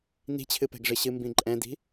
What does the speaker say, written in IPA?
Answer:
n i̤ t͡ɕʰ ɨ p ɛ̤ ɡ ʐ ɨ ɕ ɨ m b ĩ ǃʼ ɛ̃ d i̤

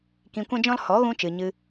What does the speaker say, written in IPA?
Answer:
k ĩ˧ kʷ ɛ̃˦ d͡ʒ ɔ̃˦ l h ɔ˨˦ ɣ ũ˧ t͡ʃ ɨ˨ ɲ ɨ˧

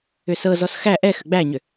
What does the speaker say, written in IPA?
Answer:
ʏ s ɤ z ɔ s x æ ʔ ɛ x ʏ ɡ͡b æ ɲ ʏ

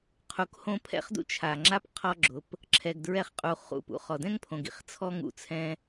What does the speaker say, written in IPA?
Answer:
qʰ u˧ k h õ˦ pʰ ɛ̰˦ χ d ṵ˦ t͡ʃʰ a˨ ŋ͡ǁ a˦ p qʰ ɔ˦ ɡ͡ǁ ʊ˨˦ p | ǁʰ ɛ˧ ɡ d ɹ ɛ˦ χ qʼ u˧ χ ṵ˦˨ p ṵ˦ χ ɔ˨ d ɛ̃˦ ŋ pʰ õ˨ ɡ ḭ˨ χ t͡sʰ ɔ˦ ŋ ṵ˦˨ t͡sʰ ɛ̃˦

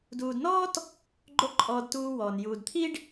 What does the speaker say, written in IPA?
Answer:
d uː˨ d n ɔː˦ t | ɡ͡ǃ o˦ ǃʼ ɔː˧ d t uː˧ w ɔː˨ n j uː˨ d t̪ʰ i˦ ɖ

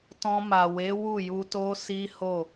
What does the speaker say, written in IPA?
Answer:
t ɔ̃˧ m a˨ w e˨˦ w u˦˨ j u˧ t o˦ s i˦ h o˦˨

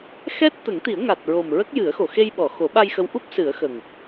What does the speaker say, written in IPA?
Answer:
x ɛ˦˥ t̚ t̪ ə˨˩˦ ŋ t̪ i˨˩˦ ə̯ ŋ a˨˩ t̚ ɹ o˨˩ m ɹ ə˦˥ k̚ j ɨ˨˩˦ ə̯ x o˨˩˨ x e˧ j ɓ ɔ˨˩˨ x o˨˩˦ ɓ a˧ j x ə˧˥ w ʔ u˦˥ p̚ s ɨ˨˩˦ ə̯ x ə˨˩ ŋ

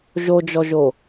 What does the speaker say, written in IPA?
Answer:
ʒ o d͡ʒ ɔ ʒ o

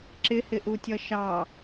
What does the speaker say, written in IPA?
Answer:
ǁ ɪ h ɪ ʔ u tʲ ʌ ʃ ɑ

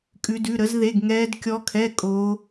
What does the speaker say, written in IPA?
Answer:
kʼ ʉ˦˥ d ʉ˧˥˧ ɾ ə˦˥ z ð e˧˥˧ ɡ ŋ ɛː˦˥ d kʲ ɔ˦˥ kʰ ɛ˧˥˧ kʼ o˦˥

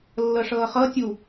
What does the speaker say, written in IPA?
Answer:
lː ɤ ʂ ɤː χ ɤ tʲ u

